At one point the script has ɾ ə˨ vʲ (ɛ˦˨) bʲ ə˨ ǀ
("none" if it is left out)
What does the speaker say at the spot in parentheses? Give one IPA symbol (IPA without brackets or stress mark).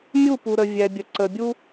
ɛ˨